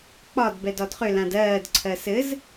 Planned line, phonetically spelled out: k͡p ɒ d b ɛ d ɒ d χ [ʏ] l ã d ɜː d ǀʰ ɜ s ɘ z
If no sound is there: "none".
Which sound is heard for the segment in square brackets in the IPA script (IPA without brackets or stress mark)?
ʏ